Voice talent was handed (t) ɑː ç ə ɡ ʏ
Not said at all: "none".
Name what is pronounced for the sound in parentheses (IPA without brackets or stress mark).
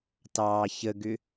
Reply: t